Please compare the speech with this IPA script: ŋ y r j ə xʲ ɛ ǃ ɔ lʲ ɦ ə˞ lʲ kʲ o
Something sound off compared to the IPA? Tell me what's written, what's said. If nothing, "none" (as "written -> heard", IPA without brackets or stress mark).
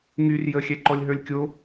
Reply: none